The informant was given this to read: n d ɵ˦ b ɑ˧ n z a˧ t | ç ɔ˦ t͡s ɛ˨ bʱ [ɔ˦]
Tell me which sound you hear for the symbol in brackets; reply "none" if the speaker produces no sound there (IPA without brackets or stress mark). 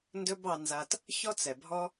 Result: ɔ˦